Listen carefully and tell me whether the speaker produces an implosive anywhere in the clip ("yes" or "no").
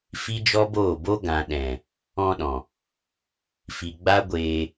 yes